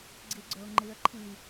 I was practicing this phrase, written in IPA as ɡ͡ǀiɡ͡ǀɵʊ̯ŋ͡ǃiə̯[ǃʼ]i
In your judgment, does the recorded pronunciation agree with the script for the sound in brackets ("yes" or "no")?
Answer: no